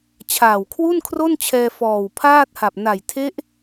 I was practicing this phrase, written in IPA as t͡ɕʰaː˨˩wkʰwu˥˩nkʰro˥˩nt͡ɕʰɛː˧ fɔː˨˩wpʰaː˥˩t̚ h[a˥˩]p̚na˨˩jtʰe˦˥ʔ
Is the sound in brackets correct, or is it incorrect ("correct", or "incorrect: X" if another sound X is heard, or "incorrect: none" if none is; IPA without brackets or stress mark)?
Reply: incorrect: a˨˩